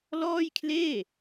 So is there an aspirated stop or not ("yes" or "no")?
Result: yes